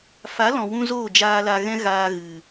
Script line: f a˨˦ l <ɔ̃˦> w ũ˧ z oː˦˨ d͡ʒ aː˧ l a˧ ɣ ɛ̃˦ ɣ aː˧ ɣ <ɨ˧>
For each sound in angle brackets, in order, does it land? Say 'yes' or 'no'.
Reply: no, no

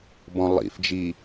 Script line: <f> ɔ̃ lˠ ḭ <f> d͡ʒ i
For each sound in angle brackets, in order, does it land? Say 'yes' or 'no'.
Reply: no, yes

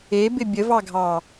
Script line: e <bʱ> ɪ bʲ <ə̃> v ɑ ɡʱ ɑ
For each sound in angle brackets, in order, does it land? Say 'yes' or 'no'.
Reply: no, no

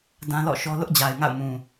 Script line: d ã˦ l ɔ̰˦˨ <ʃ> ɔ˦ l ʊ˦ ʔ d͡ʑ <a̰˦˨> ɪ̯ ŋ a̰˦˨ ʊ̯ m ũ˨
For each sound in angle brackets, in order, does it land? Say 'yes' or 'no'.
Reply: yes, no

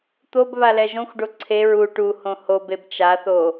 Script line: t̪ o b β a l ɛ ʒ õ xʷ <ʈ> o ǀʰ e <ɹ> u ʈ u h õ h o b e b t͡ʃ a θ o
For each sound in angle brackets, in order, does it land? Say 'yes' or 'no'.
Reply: no, yes

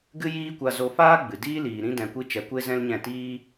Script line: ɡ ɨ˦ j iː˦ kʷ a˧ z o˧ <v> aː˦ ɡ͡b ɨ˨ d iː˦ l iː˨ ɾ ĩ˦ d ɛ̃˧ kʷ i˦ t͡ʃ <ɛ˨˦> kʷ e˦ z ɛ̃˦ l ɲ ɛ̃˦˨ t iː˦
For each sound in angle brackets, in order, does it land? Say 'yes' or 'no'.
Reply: no, no

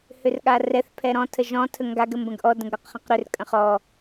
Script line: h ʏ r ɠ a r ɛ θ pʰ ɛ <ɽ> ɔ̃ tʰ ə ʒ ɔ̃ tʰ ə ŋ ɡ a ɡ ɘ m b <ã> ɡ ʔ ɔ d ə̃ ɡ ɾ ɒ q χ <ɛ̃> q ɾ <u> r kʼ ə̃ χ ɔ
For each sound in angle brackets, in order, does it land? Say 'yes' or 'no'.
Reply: no, no, no, no

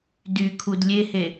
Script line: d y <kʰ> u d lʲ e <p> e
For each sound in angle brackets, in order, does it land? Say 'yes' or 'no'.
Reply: yes, no

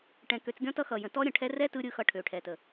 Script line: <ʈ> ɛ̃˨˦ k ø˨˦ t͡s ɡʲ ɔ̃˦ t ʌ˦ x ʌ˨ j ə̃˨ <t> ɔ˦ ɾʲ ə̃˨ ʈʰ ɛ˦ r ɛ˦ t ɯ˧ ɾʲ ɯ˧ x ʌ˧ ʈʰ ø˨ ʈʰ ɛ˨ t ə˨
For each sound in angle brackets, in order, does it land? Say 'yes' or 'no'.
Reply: yes, yes

